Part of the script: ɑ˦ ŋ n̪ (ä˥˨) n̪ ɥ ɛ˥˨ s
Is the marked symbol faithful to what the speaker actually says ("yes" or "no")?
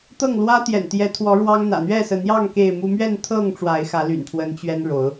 no